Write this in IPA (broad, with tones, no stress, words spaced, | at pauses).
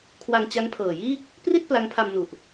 kʰwa˧ŋt͡ɕa˦˥ŋpʰɤː˨˩jiː˥˩k̚ | pri˥˩t̚ pla˦˥ŋpʰa˧mnu˨˩ʔ